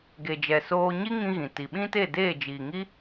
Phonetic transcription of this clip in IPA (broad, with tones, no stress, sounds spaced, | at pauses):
ɡ e˨ d͡ʒ ɛ˨ s oː˧ ɲ i˦ ŋ ĩ˧ ɣ ĩ˨ t i˨ ɓ ĩ˦ t e˦˨ d eː˦˨ d͡ʒ iː˨ ŋ i˦